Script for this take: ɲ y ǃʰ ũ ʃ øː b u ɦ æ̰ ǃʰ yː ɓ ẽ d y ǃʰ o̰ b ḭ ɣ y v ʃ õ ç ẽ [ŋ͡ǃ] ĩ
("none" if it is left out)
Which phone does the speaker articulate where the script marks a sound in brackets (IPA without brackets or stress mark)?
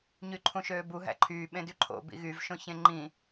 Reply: ŋ͡ǃ